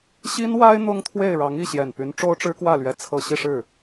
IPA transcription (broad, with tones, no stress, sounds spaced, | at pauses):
ɕ i˥ n w a˥ ɪ̯ n̪ ʊ˥ ŋ t̪ʰ w e˥˩ ɪ̯ ɻ ɑ˧˥ ŋ i˥˩ ɕ j ɛ˨˩ n p y˧˥ n ʈ͡ʂ o˥ ʊ̯ ʈ͡ʂ ɻ̩˥ k w ä˥˩ l ɥ ɛ˧˥ t͡sʰ ɤ˨˩ ɕ i˥˧ ʂ ɻ̩˥˩